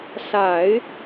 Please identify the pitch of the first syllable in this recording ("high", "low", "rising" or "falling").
low